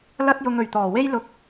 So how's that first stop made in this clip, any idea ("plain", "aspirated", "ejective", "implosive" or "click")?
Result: plain